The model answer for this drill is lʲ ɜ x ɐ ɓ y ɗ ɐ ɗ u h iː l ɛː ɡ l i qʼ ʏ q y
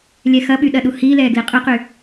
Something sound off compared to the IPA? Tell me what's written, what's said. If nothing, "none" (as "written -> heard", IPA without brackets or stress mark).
ɜ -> ɛ